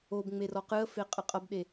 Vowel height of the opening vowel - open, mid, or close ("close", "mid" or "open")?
mid